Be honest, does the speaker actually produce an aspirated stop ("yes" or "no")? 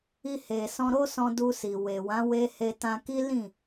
no